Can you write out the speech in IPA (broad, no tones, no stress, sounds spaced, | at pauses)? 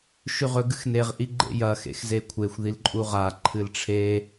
ʃ ʉ ʁ ɵ ɡ ɨ x n e ʁ ʔ i ɡ͡ǃ ḛ j ɐ x ḛ x z e kʷʰ e xʷ ð i l ǃʼ u ʁ a ǃʰ ɨ l ʈ͡ʂʰ e